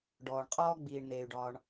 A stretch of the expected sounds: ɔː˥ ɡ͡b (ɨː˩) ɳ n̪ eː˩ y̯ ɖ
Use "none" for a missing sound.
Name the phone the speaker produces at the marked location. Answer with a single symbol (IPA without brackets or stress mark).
iː˩